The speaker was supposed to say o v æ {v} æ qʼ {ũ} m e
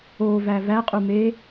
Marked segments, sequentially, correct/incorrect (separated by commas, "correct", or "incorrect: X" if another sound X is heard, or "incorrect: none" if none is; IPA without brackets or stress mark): correct, incorrect: u